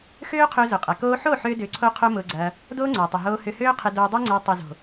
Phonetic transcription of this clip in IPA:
x øː˦ qʰ ø˧ z ʊ˨ qʼ ɐ˨ k oː˦ ħ o˦˨ ħ ʏː˧ d ʏː˨ ǀʰ o˧ qʰ o˦ m ʊː˧ ɡ͡ǀ ɐː˧ | d oː˦ ŋ͡ǀ ɐː˨ tˤ ʊ˨ ɦ oː˧ h ʏ˧ h øː˦ qʰ ɪ˧ d oː˧ dˤ ø˦ ŋ͡ǀ ɐː˧ tˤ ʊ˨ z o̤˨

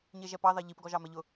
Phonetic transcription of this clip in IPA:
ɲ e ʒ ɛ p ɑ ð ɑ ʎ i p ɡ ɔ ʒ ɑ m ɛ ʎ ʊ

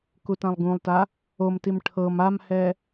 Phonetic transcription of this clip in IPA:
k u t ã lˠ ɡ ũ lˠ t a | o m t i m ʈʰ ɤ m a m h ɛ

